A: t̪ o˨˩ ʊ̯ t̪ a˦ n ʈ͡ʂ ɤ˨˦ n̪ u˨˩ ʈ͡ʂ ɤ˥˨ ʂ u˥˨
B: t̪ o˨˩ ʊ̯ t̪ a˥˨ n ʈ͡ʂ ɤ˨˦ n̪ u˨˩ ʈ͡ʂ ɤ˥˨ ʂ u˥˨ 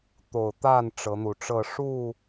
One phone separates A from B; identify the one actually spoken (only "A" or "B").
B